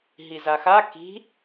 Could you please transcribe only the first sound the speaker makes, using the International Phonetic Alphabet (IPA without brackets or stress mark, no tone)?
ɦ